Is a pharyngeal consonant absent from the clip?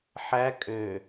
no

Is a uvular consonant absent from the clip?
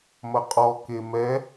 no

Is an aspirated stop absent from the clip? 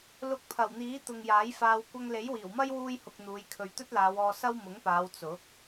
no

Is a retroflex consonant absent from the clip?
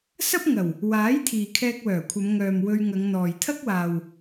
yes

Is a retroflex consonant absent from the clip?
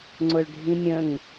no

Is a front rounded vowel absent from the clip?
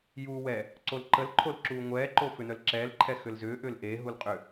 no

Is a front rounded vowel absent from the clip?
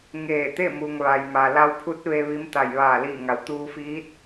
yes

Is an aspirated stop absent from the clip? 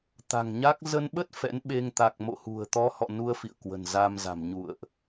yes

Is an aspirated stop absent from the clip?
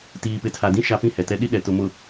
no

